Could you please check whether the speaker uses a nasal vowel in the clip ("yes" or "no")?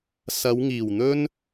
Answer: no